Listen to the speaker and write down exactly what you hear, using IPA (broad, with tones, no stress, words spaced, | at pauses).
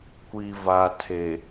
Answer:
kʷi˨va˨tʰe˨